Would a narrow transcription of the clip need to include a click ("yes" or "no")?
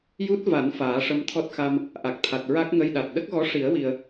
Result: no